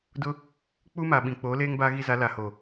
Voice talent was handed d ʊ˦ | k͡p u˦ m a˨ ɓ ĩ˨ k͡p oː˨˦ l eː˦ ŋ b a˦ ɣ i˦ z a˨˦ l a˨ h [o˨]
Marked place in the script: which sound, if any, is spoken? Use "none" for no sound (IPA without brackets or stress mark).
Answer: oː˨